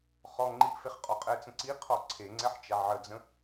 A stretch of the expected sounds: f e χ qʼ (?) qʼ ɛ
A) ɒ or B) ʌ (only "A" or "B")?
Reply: A